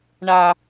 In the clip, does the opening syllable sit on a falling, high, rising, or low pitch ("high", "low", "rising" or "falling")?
high